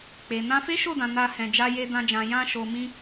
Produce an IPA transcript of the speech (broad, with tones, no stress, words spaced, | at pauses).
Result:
k͡pe˨ nã˧fe˦ʃo˦˨dã˨ na˧ hɛ̃˨d͡ʒa˧je˧ dã˦d͡ʒã˧ jã˦ʃo˧mĩ˦